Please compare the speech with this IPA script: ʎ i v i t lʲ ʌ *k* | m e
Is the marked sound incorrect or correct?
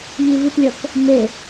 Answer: correct